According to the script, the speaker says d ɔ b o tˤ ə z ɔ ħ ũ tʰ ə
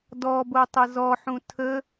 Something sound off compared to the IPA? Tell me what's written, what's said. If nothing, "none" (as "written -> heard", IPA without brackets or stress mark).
none